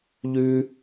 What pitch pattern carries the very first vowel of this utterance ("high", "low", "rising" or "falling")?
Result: high